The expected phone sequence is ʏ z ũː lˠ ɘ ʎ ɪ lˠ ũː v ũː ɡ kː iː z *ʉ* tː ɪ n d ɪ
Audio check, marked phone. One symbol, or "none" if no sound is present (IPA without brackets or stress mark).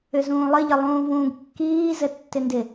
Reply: ɘ